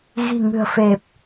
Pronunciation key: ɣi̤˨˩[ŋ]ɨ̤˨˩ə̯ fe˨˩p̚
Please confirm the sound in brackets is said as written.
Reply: yes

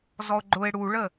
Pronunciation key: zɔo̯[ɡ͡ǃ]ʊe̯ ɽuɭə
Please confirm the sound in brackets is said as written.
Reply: yes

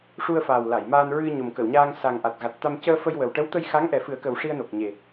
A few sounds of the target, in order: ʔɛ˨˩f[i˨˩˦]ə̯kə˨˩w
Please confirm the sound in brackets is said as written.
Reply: no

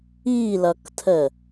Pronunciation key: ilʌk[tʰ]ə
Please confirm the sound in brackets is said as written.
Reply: yes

